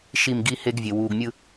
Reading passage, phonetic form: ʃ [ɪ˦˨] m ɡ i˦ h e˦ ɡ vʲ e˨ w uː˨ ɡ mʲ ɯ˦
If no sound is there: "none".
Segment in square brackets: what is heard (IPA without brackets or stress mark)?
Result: i˦˨